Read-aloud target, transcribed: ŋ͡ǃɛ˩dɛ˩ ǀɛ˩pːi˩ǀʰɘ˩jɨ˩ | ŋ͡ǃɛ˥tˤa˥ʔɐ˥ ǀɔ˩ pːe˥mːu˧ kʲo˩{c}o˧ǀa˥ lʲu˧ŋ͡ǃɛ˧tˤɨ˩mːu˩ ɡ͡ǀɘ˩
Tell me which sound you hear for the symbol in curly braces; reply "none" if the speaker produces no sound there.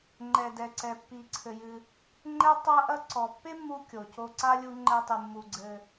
c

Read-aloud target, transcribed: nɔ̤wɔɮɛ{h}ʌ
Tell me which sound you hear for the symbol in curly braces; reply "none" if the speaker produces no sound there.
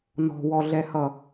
h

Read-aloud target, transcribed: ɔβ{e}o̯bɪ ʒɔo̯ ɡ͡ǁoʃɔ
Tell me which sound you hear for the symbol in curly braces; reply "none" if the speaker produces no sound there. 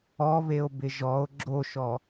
e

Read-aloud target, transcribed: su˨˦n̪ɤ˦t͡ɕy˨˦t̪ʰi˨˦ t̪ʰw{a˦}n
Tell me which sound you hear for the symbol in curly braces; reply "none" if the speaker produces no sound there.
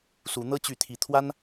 a˦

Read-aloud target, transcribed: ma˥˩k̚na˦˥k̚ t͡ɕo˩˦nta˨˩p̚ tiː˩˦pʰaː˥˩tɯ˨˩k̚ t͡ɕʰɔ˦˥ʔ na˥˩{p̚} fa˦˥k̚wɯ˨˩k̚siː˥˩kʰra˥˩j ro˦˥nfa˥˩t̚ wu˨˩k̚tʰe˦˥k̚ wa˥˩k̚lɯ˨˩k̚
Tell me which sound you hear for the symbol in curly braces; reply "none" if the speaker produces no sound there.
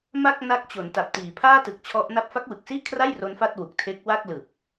p̚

